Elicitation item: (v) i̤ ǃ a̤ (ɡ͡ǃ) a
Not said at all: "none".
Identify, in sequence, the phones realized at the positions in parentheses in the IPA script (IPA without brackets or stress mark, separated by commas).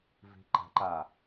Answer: v, ǃ